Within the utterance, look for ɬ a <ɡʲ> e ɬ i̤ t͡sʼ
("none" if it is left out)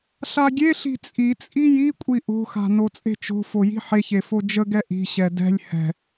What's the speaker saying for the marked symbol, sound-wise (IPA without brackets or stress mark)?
ɡʲ